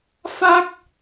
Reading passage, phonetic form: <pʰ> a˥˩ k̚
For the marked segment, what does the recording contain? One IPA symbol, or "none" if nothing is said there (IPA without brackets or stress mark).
f